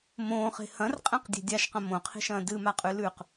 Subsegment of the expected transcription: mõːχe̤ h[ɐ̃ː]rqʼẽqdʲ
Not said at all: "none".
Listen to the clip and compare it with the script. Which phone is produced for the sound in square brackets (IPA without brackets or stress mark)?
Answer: ɐ̃